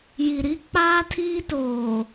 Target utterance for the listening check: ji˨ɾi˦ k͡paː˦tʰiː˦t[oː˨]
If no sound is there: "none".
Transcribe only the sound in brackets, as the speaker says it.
oː˨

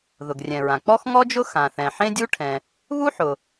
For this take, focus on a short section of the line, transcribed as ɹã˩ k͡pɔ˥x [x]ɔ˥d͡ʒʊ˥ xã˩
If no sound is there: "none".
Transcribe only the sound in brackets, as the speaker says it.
ŋ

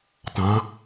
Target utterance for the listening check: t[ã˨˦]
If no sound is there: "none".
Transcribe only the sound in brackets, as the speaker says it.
ã˨˦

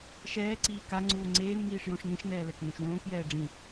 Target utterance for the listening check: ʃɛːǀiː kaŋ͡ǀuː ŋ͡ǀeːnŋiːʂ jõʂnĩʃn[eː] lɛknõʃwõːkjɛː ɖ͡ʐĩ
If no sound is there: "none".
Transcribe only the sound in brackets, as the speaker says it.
ɛː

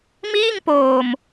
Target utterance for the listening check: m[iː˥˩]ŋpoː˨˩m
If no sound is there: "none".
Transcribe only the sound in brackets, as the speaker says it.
iː˥˩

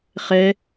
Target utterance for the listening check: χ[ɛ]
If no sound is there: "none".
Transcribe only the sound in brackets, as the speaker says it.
ɛ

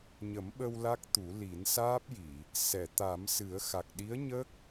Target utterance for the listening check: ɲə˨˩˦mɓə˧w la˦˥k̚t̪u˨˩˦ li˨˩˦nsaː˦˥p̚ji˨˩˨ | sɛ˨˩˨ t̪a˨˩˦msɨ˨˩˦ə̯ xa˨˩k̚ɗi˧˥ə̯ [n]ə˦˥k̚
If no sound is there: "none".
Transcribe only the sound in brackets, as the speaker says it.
ɲ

